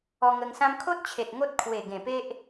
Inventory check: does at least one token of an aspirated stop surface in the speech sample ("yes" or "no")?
yes